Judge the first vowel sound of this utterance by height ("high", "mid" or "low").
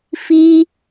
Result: high